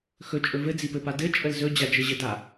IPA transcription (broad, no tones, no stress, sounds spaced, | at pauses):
x ɵ t͡ʃʼ ɵ v ɘ d͡z i p ɘ p a d ɘ t͡ʃʼ ə l z ɵ d͡ʑ a d͡ʒ ɘ ʑ ɘ d a